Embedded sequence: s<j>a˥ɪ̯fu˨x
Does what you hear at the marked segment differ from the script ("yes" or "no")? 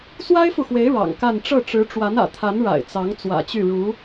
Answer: yes